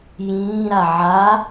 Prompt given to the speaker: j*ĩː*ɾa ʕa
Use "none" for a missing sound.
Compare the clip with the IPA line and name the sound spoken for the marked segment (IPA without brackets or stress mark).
ĩː